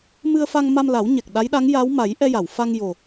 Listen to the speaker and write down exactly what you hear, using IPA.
m ɨ˧ ə̯ f a˧ ŋ m a˧ m l a˨˩˦ w ɲ ɛ˨˩ k̚ ɗ a˧˥ j ɗ a˧˥ ŋ j a˧˥ w m a˨˩˦ j ʔ ɛ˧ j a˨˩˨ w f a˧ ŋ j o˨˩

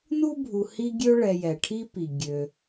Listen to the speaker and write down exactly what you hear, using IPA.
n u˥ bʱ u˨ h i˦ ɡʲ ø˦ ɭ ɛ˨ j ɛ˩ ʈʰ i˥ p i˩ ɡʲ ø˩

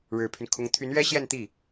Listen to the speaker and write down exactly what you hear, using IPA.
ɻ ɻ̩˨˩ pʰ y˦ n kʰ ʊ˧˥ ŋ t̪ʰ y˧˥ n ɥ ɛ˥ ɕ j ɛ˥˧ n t̪ i˥˩

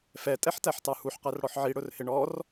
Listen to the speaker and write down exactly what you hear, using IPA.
f ɛ tʼ ɛ ħ t æ ħ t ɑ h u ħ q æ r ɽ ɔ ħ ʕ i ɽ ʊ r h ɪ ɳ ɔ r

